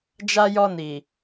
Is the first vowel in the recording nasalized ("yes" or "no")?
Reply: no